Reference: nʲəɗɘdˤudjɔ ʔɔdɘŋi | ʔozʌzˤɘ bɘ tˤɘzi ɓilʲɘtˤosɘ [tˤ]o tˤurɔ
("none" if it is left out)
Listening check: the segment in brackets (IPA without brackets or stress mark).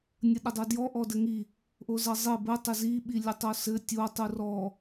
tʲ